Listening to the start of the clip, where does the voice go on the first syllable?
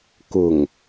low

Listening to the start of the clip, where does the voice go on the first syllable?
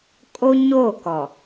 high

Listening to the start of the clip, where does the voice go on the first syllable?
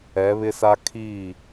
rising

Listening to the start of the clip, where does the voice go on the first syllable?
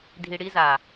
low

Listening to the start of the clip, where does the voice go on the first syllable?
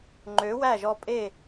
rising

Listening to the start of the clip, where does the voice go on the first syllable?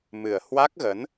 low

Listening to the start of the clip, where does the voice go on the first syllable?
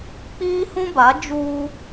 high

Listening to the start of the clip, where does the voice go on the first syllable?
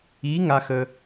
rising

